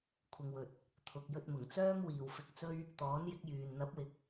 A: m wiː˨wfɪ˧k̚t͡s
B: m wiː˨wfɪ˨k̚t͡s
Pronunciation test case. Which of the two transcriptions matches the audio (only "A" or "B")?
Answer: A